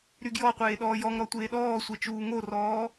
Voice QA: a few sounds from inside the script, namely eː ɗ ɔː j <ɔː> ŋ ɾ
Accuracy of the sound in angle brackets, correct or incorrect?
incorrect